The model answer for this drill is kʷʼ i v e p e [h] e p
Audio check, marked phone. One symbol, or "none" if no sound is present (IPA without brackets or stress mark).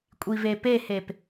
h